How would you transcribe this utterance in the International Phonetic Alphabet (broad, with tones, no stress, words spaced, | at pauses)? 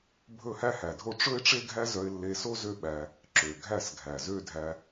bʱɵ˦˨hæ˦hæ˨dʱo˦ ʈ͡ʂɵ˦ɪ̯ʈ͡ʂe˦ ɡʱæ˦zœ˧ɪ̯lːe˧so˦ zø˦ɓæ˧ | ǁø˨ɡʱæ˦˨sɡʱæ˨zø˦ dʱæ˧